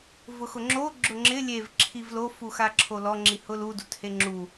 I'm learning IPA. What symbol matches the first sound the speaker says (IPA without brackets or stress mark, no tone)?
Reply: v